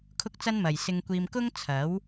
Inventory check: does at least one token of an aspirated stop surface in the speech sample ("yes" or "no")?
yes